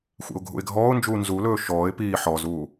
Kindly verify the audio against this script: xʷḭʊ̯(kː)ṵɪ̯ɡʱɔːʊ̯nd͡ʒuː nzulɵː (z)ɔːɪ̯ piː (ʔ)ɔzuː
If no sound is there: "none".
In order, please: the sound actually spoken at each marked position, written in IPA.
ɡʱ, ʃ, ħ

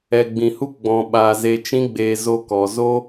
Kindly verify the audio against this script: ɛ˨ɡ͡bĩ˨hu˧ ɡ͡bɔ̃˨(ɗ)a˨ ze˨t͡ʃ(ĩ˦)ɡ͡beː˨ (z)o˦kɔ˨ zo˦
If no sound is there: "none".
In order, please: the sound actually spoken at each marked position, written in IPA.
ɓ, ĩ˧, z

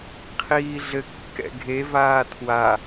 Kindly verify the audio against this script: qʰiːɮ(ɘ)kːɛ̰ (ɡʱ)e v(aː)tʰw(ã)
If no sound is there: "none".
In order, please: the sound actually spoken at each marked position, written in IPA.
ɘ, ɡʱ, aː, a

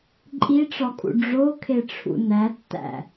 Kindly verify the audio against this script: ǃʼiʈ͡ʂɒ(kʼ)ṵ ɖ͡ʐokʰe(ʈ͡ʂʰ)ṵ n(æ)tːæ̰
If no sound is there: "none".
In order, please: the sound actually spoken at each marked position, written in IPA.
kʼ, ʈ͡ʂʰ, æ

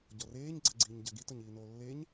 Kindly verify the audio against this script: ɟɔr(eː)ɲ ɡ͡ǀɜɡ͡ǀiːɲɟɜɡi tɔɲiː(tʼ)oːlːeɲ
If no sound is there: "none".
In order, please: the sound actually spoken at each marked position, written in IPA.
eː, n

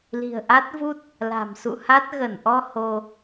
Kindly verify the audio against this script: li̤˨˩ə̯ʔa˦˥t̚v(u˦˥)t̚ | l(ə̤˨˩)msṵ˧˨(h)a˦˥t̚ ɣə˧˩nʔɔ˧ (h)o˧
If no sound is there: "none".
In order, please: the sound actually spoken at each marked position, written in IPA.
u˦˥, a̤˨˩, h, h

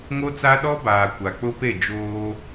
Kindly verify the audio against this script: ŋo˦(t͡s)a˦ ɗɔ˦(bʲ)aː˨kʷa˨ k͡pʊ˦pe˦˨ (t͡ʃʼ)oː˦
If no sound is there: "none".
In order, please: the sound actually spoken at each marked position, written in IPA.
t͡s, b, d͡ʒ

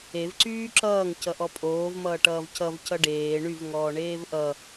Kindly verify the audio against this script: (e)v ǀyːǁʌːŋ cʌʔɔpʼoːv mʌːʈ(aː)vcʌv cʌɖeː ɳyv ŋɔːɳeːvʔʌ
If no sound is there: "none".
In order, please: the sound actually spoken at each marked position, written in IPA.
e, ʌː

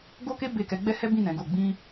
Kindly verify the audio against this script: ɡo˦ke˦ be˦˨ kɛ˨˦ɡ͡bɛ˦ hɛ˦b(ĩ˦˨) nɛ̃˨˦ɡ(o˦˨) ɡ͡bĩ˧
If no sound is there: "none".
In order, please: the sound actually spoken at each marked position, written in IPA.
ĩ˦˨, o˦˨

